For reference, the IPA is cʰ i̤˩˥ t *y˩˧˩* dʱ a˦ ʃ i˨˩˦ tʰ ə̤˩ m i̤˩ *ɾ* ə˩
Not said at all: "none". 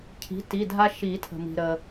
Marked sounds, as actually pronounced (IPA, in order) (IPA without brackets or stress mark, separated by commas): i˩˧˩, ɾ